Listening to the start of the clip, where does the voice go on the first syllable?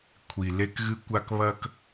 low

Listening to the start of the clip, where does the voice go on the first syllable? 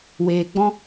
low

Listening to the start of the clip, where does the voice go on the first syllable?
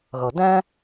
low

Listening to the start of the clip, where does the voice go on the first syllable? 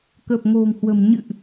low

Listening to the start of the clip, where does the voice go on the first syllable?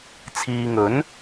low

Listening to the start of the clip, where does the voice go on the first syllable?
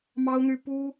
high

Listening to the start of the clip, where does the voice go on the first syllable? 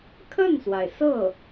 falling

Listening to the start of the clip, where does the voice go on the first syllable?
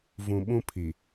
low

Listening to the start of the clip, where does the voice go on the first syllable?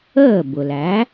falling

